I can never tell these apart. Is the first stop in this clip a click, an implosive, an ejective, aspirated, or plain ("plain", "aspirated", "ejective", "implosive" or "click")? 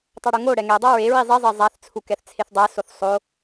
plain